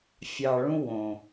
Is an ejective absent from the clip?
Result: yes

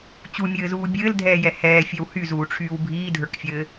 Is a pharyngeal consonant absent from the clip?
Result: yes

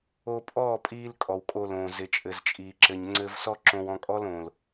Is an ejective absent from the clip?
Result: no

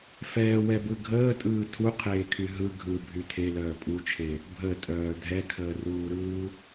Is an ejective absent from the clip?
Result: no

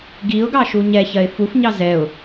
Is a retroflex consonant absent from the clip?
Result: yes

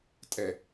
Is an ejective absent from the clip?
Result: no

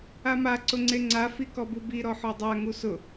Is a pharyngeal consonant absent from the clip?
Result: no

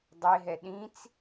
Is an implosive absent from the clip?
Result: no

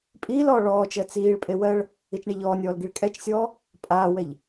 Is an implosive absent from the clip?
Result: yes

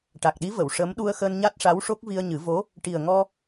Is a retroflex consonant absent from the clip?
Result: no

